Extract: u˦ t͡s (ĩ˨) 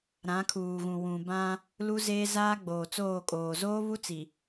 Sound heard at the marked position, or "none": i˨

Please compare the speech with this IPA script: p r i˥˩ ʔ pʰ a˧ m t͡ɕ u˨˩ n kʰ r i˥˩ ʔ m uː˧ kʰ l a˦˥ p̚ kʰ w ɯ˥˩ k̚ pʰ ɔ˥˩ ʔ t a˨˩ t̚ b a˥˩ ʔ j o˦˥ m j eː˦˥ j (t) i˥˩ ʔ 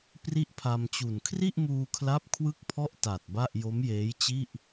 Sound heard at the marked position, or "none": t͡ɕ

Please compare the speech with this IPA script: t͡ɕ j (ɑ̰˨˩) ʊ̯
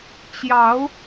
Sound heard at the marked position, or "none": ɑ˨˦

